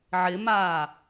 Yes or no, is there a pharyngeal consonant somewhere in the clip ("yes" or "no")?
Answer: yes